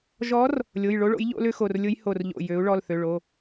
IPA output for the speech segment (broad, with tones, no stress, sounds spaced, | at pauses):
ʒ ɔ˧˥ r | lʲ o˩˧˩ j ɭ o˧˥ ɭ o̰˩˥ j ʎ o̰˧˥ l ʏ˧˥ x o˩˧˩ r lʲ ʊ˧˥ j h o˧˩ r ʎ o̰˧˩ j ø˩˥ u̯ ɭ ɔ˩˧˩ l θ ø˩˧˩ ɭ o˩˧˩